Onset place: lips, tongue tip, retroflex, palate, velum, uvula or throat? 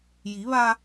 palate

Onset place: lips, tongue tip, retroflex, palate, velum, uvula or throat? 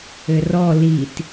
tongue tip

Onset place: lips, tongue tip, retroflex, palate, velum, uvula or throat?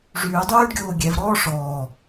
retroflex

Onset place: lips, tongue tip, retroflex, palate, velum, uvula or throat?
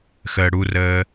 velum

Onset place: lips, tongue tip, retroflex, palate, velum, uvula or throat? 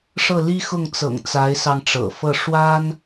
retroflex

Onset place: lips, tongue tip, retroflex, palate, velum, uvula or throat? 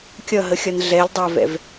velum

